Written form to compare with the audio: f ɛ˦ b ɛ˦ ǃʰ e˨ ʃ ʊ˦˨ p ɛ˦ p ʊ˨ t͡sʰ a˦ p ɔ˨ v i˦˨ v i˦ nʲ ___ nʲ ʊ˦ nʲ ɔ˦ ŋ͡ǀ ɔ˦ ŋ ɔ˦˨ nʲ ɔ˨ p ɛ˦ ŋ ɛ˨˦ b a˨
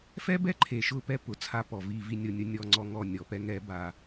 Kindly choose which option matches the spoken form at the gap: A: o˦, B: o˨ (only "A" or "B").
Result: A